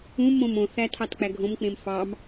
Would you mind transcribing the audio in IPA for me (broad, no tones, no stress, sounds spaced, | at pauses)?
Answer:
ũ m õ m õ θ æ tʰ ɑ t k͡p æ ɡʱ õ m k͡p ẽ m f ɑ m